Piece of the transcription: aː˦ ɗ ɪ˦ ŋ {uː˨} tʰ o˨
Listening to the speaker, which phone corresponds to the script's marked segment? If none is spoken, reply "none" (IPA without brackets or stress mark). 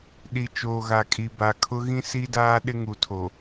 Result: u˨